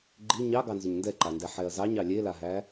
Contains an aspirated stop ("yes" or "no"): no